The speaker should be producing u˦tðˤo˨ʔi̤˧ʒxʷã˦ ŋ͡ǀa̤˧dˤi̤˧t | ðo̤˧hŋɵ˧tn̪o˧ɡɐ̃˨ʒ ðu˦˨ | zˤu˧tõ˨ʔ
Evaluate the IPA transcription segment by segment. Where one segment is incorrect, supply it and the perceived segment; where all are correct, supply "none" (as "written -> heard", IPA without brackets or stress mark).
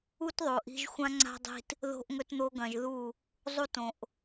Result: h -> ʔ